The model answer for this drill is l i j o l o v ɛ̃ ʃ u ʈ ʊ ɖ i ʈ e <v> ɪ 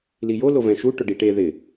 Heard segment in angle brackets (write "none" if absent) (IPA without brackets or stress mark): ð